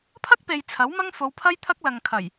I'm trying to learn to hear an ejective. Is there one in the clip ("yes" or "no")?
no